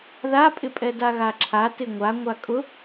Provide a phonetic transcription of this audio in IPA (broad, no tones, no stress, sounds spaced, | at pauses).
ð a pʼ ɪ pʼ ɛ d a ɣ a ǁʰ a t ɪ ŋʷ a ŋʷ a kʼ ʊ